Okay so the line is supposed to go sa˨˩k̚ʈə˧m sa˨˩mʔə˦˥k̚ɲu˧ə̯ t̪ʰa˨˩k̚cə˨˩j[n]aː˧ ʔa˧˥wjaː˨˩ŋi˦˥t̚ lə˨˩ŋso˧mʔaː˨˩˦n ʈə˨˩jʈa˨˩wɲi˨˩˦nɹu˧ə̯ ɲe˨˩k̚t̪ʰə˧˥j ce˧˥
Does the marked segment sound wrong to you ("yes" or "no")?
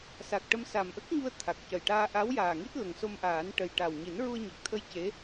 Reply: yes